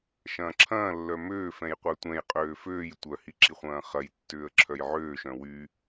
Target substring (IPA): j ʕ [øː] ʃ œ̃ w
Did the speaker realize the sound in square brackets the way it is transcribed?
yes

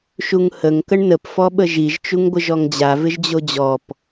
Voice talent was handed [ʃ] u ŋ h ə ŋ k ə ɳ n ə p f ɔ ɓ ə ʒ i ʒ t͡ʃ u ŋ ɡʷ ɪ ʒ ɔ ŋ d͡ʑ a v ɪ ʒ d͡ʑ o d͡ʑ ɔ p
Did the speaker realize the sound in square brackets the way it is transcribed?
yes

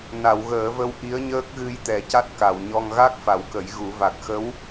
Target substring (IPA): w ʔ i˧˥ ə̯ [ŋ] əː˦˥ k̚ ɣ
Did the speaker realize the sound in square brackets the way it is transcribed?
no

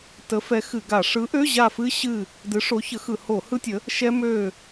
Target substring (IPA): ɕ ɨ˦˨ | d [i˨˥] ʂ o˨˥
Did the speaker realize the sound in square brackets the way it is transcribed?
no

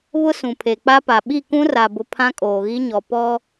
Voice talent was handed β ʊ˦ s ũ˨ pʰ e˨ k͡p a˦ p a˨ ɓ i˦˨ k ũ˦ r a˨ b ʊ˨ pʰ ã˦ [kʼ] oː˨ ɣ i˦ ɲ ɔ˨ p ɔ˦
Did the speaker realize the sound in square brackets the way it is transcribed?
yes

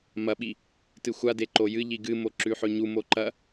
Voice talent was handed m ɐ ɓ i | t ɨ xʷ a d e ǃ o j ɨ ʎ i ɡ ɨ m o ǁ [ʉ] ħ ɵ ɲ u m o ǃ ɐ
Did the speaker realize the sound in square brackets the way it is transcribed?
yes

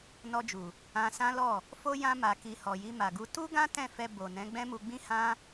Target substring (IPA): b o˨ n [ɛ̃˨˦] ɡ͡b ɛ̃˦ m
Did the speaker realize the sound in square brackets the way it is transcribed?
yes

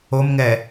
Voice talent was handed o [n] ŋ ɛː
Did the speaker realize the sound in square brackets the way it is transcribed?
no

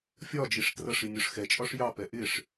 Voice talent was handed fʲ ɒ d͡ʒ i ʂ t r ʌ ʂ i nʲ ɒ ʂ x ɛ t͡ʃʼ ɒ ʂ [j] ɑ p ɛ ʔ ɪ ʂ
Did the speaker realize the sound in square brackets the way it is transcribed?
yes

